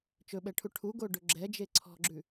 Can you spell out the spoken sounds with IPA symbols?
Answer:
t͡ʃ ɵ ɓ ɛ ʈʰ u ʈʰ u ɡ o ɖ ɵ ɡ͡ǁ ɛ d͡ʒ e ǀʰ ɔ̤ ɡ͡ǁ ʉ

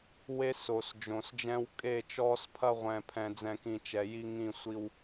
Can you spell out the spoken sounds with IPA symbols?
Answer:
w e˦ s o˨ s d͡ʒ õ˨ s d͡ʒ ɛ̃˦ w kʼ e˦˨ t͡ʃ ɔː˦ s pʰ ɐ˦ ʁʷ ɛ̃ː˨ pʰ ɛ̃˨ d͡z ɛ̃˨ k ĩ˨ t͡ʃ ɛ˨ j i˦ ŋ ĩ˦˨ sʷ i˦ w

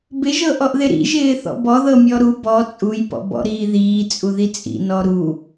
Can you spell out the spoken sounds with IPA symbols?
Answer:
b ɪ ʒ ɤ ʔ ɔ ʔ ð ɪ ɾ ḭ ʒ ɪː θ ɔ̰ b ɔ ð ɤ mʲ ɔ ɾ u b ɔ t͡sʼ u j p ɔ̰ b ɔ̰ ɾ iː ð iː t͡sʼ u ð i t͡sʼ ḭ n ɔ ɾ u

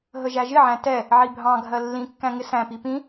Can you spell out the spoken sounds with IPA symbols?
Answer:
ɦ ə ʒ æ ʒ ɪ ʕ æ̃ t ɛ | ʕ i bʱ ɑ̃ ɡʱ ɜ lː ĩ kː æ̃ ŋ ɪ s æ̃ p i p ĩ

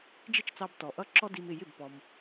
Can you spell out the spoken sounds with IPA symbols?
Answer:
d͡ʒ ɪ˥˩ t͡ʃ t͡s ɑ˧ b t ɔ˩ ʔ ʌ˧ ǁ ɔ˥ d i˧ m ɪ˥˩ j ɪ˥˩ b p ɔ˩ m

